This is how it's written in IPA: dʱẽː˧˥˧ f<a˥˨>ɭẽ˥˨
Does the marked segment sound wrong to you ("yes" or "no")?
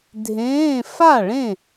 no